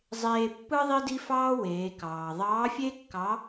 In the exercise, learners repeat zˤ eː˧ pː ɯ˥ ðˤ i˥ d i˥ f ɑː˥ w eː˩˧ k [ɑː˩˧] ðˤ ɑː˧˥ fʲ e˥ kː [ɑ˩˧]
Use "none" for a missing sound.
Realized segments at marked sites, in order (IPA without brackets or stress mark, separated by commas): ɑː˩, ɑ˧˥